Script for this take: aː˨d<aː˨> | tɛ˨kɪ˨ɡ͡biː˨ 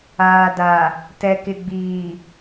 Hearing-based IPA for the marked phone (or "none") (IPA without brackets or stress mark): a˨